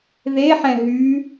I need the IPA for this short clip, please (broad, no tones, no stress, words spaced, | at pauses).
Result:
ðeħɛ̃ ɦy